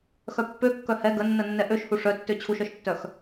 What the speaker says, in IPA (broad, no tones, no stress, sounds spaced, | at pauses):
x œ pː ø kː œ h ɛ ɡ ə nː ə nː ɛ ʔ ø ʃ h u ʂ œ tː ø t͡ɕʰ u ʃ œ ʃ tː œ x